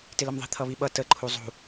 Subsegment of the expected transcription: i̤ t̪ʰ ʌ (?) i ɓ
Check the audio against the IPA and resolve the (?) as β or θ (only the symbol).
β